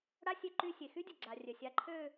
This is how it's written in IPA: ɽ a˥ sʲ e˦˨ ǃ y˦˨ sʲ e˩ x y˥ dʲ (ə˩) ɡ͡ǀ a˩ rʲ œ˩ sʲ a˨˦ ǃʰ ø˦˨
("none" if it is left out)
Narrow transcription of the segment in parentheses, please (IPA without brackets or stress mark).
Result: ə˩